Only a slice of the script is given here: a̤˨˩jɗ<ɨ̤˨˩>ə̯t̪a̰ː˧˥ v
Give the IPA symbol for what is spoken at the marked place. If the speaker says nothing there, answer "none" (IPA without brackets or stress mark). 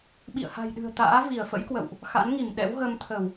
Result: ɨ̤˨˩